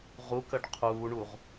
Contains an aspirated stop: yes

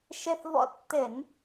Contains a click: no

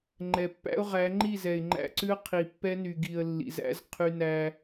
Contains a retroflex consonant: no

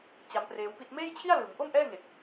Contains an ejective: no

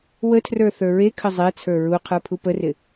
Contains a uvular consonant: yes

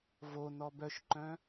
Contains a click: yes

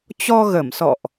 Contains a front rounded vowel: no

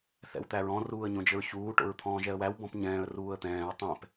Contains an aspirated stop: yes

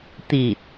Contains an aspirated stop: no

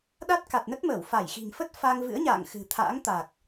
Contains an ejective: no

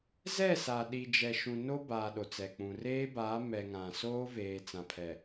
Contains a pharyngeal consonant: no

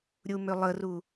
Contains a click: no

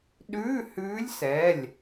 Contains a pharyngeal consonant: no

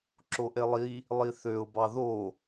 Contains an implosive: no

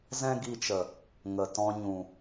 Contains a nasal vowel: yes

